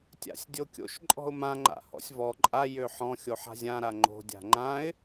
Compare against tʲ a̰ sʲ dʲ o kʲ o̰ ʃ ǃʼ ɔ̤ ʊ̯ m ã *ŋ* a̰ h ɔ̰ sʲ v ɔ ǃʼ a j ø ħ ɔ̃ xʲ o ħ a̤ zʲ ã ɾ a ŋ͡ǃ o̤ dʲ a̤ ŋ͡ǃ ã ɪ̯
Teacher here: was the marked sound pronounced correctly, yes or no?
no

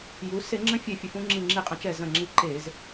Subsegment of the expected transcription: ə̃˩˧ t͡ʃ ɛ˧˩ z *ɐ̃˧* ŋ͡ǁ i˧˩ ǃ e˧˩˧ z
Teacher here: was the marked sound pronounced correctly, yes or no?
no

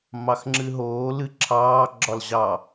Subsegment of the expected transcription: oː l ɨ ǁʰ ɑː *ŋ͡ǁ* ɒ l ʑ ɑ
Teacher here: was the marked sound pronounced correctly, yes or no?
no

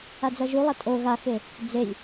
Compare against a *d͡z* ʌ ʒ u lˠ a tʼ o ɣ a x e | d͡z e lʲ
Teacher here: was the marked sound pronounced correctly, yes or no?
yes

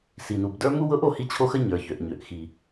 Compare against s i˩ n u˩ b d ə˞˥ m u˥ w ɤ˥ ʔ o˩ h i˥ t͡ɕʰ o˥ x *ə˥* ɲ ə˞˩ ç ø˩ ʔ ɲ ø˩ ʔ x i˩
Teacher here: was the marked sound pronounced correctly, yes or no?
yes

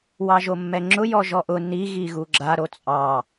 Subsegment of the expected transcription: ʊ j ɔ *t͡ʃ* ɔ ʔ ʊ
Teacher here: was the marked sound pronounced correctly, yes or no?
no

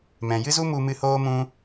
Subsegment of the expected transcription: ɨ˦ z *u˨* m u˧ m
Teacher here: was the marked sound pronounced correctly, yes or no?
no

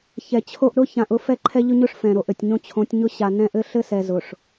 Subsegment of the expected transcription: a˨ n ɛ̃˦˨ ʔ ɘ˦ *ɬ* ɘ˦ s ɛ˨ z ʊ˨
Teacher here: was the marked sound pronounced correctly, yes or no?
yes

